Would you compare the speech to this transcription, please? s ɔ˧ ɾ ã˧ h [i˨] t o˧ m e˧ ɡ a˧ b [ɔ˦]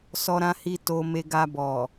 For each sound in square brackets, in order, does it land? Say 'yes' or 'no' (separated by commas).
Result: no, no